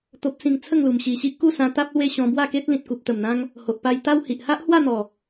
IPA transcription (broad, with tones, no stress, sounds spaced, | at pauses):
t̪ o˨ p̚ s ĩ˨˩ ŋ t͡sʰ ə˥˧ ŋ l u˨˩ m ɕ i˨˩ ɕ i˦ ʔ k u˥˧ s ã˧ t̪ a˦ p̚ l w e˦ ɕ ɔ̃˧ b w a˥˧ k e˦ t̚ l ĩ˨ t̚ k u˨ p̚ t̪ ə˨˩ m n̪ ã˧ ŋ | h o˨ ʔ p a˧ j t̪ a˦ w h i˨ ʔ h a˦ ʔ h w a˥˧ n̪ ɔ˨˩